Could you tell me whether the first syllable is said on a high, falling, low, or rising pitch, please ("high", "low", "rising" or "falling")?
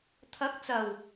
rising